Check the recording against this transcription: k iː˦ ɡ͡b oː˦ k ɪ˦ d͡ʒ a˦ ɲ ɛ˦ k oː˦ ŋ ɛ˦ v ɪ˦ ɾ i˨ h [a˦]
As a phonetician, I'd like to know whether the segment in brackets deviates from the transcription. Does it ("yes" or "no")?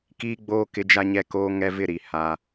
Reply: no